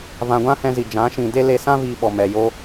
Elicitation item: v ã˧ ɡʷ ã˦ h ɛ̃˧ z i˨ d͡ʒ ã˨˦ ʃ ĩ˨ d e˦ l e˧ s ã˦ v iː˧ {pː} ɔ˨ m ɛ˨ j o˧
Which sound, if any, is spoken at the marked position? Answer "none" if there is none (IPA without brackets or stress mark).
ɓ